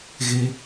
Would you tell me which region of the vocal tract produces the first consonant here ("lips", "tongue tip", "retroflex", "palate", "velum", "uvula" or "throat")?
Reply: velum